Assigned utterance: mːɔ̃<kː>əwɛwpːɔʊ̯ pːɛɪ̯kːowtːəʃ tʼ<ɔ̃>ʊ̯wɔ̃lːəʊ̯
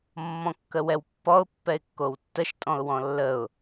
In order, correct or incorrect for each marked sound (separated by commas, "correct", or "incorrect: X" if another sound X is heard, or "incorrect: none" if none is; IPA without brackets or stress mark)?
correct, correct